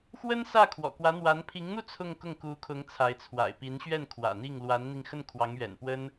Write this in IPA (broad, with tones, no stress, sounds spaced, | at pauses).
x w ə˥ n s ä˥˩ kʰ w ɔ̰˨˩ k w ä˧˥ n̪ w a˧˥ n pʰ i˧˥ ŋ n̪ u˥˧ t͡sʰ ʊ˥˧ ŋ k ʊ˥˩ ŋ k u˧˥ kʰ ʊ˧˥ ŋ t͡sʰ a˧˥ ɪ̯ t͡sʰ w a̰˨˩ ɪ̯ p i˧˥ n ɕ ɥ ɛ˥˩ n kʰ w ä̰˨˩ n̪ i˥˩ ŋ l w a˧˥ n n̪ i˧ ŋ x ə˥˩ n kʰ w ɑ˧˥ ŋ ɥ ɛ̰˨˩ n p w ə˥ n